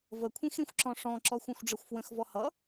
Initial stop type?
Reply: aspirated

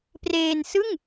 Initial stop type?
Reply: plain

